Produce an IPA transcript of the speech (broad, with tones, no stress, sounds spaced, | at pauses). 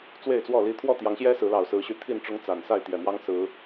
t͡s w e˥˨ ɪ̯ t͡s w ɔ˥˨ l i˦ t̪ʰ w ɔ˥˨ t̪ j ɑ˨˦ ŋ ɕ j ɛ˦ s ɹ̩˨˦ l ɑ˨˩ ʊ̯ s ɹ̩˨˦ ɕ y˨˦ t̪ʰ i˥˨ n ʈ͡ʂ ʊ˦ ŋ t͡s a˨˩ n s a˥˨ ɪ̯ t̪ j ɛ˨˩ m w ɑ˦ ŋ s ɹ̩˨˦